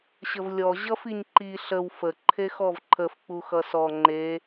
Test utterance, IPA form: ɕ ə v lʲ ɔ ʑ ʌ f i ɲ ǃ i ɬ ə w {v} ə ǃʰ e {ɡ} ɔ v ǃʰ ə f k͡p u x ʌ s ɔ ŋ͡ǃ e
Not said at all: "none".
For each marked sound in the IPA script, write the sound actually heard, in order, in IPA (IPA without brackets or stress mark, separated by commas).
f, x